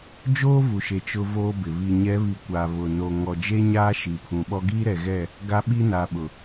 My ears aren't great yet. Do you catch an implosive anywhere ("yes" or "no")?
yes